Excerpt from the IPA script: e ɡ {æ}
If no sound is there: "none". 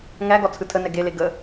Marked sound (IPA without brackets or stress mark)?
ə